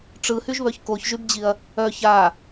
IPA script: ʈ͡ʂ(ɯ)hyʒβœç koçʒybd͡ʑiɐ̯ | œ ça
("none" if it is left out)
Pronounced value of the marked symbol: ɯ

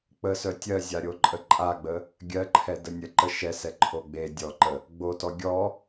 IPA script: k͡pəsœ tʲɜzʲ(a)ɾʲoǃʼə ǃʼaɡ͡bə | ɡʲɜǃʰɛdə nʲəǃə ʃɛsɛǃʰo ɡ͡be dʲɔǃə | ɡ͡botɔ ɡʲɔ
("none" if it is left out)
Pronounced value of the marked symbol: a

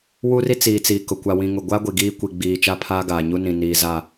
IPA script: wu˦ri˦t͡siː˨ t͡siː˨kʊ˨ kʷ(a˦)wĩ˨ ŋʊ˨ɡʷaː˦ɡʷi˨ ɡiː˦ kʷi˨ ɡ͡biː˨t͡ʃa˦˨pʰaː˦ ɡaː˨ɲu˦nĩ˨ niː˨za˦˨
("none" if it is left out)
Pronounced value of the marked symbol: a˨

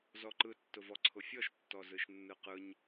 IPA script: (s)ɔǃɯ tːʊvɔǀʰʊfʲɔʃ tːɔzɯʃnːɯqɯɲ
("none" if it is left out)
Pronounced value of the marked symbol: z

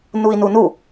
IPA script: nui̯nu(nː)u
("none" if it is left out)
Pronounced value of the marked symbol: n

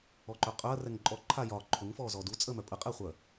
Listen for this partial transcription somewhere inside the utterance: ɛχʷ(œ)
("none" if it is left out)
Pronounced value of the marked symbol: œ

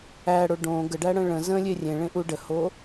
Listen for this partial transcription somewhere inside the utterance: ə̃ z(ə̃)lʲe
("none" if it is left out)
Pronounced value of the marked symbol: ə̃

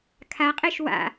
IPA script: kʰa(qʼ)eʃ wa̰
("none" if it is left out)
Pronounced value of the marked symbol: qʼ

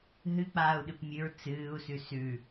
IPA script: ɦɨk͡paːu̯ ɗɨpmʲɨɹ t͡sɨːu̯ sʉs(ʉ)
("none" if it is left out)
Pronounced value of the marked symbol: ʉ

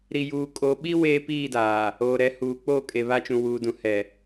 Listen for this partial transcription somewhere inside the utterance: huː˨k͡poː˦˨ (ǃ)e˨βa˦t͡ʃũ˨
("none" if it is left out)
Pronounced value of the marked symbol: kʼ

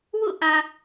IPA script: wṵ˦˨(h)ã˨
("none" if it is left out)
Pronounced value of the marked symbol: ʔ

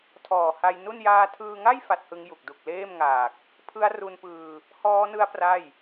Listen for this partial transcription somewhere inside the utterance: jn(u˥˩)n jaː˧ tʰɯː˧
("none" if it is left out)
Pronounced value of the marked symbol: u˥˩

